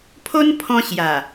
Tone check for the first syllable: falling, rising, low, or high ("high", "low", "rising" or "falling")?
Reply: high